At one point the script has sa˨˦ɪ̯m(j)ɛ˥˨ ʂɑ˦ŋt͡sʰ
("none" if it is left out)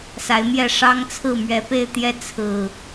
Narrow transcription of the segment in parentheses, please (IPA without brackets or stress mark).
j